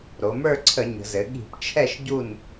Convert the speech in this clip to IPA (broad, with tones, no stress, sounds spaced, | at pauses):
ɾ o˩˧ m ə˞˦˨ ǀʰ ə˧˩˧ ɲ ə̤˩˧ z ɘ˩˧ ɠ i̤˧˩˧ p t͡ʃʰ ɛ˦˨ ʃ ɟ u˦˨ n